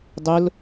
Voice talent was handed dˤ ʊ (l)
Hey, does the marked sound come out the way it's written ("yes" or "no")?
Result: yes